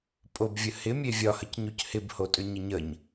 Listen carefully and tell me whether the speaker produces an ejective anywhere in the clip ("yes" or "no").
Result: yes